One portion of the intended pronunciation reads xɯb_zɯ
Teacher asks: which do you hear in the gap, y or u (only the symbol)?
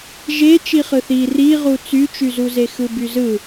y